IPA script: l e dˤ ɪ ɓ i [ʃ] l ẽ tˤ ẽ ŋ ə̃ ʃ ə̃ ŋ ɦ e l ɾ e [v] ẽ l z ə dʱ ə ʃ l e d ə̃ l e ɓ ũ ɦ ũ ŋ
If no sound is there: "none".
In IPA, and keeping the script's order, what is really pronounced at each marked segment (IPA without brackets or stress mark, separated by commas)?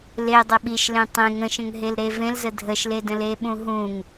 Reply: ʃ, v